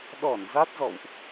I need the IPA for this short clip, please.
ɗɔ˧˩n za˦˥t̚zɔ̰˧˨wʔ

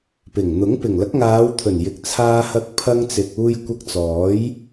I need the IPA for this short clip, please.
pɪ˨˩ŋn̪ʊ˨˥ŋ pɪ˨˩ŋlɐ˨˥k̚ŋaː˨˧wt̪ʰɵ˨˩n jɪ˨k̚t͡sʰaː˧hɐ˧k̚ pʰɐ˧ŋt͡sɪ˨k̚ uː˧jkʷɐ˧k̚t͡sɔː˨˥j

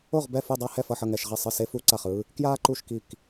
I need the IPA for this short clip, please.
o˥˨ʁ bɛ˥˨fu˥˨ dˤa˥ hɛ˥˨fʌ˥˨ħʌ˥˨ ŋɛ˥˨ʃʁɛ˥˨ sˤɯ˥˨se˥fu˥ ǀa˥˨χɯː˥ | kjaː˥ǃu˥˨ʃki˥˨k

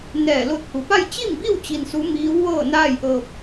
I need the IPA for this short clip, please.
nɛː˧˩lo˧t̚hu˩pa˥˨j t͡ɕi˥˨mbi˥˨w t͡ɕi˧nsu˧˥ miː˧˥wʋɤː˥˨naː˥˨j ʔɤː˧p̚

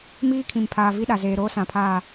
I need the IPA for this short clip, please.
miː˦kʰĩ˨mpʰaː˨ vi˦ɗa˨zeː˨ ɾoː˦sã˨pʰaː˦˨

